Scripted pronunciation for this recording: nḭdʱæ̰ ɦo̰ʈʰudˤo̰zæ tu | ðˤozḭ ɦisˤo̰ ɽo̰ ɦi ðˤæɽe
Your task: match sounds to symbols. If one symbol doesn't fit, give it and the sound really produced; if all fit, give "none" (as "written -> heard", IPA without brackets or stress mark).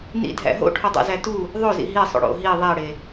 none